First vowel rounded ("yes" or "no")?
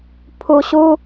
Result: yes